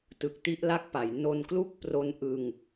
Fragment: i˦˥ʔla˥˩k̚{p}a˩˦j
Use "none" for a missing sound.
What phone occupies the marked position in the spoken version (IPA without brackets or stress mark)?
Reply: p